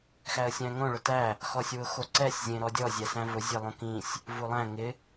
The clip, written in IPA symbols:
xæə̯sʲæ̃ŋõ ɭʊtæ | xɔsʲwʊxoǀɛsʲ zʲẽɾɔdʲɔ zʲæsæ̃vʊ zʲelˠõkĩsʲ | vulˠæ̃ ŋɪ

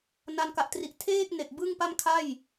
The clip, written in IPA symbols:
na˧nka˨˩ʔtri˨˩ʔ tʰeː˥˩k̚ne˨˩k̚ bɯ˥˩ŋ pa˥˩mkʰa˥˩j

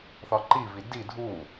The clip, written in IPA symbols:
θɒǃivi di dʱu

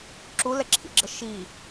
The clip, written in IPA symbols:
ǁulɛǁʰḭɡ͡ǁə ʃi

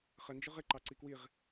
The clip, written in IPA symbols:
χənd͡ʒʊʁ ɪǃɑ ǀikwiʁ

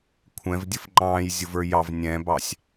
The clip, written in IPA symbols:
kʷʰɛ̃vdʲəf ŋ͡ǃɑ̃ːjzʲʊvə˞ jɑv nʲɛ̃bɑsʲ

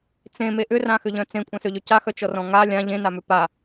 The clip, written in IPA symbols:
t͡sẽme ʔʏrãxʏʎœ̃ t͡sẽkʷʼœ̃søʎø caxœt͡ʃɔrɔ̃ ŋa lʲã ʎẽnamʏ pa

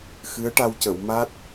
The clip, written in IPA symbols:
xɨ˧˥ə̯ʈa˧wcə˨˩˨w ma˦˥t̚

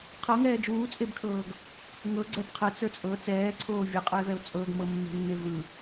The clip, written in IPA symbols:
qʰɤŋɛː d͡ʒuːt͡sʼebkʰɤːɡ | ŋɤɡ͡ǀɛb qʰɯt͡sə˞ t͡sʼɤ t͡sɛːǀʰoː vʲɯqʼɯe̯vɛo̯ t͡sʼɤɡmɤmːe̤nːe vɯ

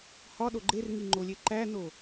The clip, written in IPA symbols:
hɒɗo ɡ͡ǃerŋiŋ͡ǃolʲe ǃæno

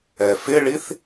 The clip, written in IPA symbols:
ɛfɪɭiθ

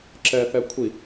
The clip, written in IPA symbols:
ǁɛ θɛkʷʰi

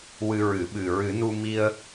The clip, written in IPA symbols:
wɨ˧ɹɨ˨˩˦ɓɨ˨˩ ɹɨ˨˩˦nu˧mi˧ə̯

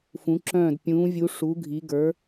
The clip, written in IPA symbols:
fũ˩˧ǁœ̃ː˧˩d pʲũː˩˧vʲu˩˧ ʂu˩˧ ɡʱi˩˧ɡə˞˩˧

